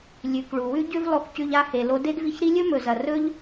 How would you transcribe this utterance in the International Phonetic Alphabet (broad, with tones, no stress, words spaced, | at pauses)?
lʲʉ˩k ɭu˩wʉ˥ ɟʉ˥vlˠo˧kcʉ˧ʎ a˧he˩ lo˧ de˥dvi˧çɾi˥ lʲɵ˥mɵ˩zɐ˩ rɵ˥ʎ